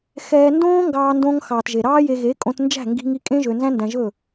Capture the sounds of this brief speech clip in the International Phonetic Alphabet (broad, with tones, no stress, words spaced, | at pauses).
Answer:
xɛː˧ndõː˦ŋɡɑː˧ ndõ˧ŋ xɑː˨tʒe˨ɾɑː˦je˧ ɣe˨˦kʼõ˧tnd͡ʒæ̤˦˨ ŋɡi̤˦ŋi˦ kʼẽ˦ʒø˧ nzæ̃˦ndæ̃˧ʒɵ˦˨